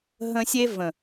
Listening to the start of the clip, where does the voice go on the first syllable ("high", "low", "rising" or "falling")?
high